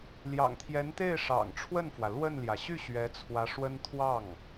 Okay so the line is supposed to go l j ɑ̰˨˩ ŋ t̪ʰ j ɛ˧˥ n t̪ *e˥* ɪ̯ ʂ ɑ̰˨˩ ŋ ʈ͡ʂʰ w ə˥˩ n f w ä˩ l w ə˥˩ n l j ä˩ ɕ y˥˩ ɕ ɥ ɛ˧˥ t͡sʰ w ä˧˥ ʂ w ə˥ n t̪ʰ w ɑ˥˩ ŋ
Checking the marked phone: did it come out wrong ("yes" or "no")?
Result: yes